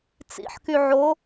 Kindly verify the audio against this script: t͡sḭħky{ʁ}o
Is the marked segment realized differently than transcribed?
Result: yes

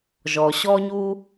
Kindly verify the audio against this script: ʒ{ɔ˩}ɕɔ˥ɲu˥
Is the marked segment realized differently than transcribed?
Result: no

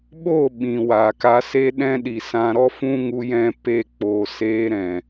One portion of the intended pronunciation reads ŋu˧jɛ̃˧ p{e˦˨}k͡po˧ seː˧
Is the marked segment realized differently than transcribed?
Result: no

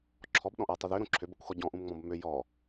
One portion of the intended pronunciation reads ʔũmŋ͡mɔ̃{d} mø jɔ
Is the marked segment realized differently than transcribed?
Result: yes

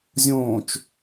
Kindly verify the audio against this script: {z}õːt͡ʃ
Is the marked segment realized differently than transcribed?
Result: yes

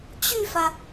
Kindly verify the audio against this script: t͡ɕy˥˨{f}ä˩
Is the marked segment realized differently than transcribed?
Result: no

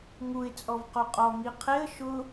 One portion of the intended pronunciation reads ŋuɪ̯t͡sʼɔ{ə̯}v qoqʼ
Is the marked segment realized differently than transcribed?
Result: yes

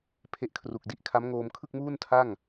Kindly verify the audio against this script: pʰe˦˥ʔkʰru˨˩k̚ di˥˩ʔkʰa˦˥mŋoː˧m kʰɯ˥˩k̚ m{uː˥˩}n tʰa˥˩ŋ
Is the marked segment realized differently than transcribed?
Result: no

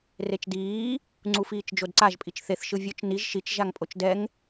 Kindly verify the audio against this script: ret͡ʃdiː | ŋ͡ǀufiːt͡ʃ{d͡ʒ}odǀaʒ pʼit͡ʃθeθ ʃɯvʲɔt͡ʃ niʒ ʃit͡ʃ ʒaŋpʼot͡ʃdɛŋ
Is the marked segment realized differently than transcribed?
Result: no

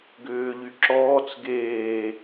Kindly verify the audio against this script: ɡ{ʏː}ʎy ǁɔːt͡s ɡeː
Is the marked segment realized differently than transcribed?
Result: no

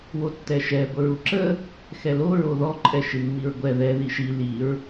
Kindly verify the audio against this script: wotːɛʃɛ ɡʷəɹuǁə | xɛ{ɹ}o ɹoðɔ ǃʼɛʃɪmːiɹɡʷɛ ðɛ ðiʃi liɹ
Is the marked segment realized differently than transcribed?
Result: yes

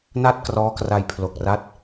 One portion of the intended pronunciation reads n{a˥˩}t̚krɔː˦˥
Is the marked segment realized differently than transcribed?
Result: no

